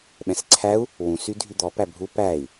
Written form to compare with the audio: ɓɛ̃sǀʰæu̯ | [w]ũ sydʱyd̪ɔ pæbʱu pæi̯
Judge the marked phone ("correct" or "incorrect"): correct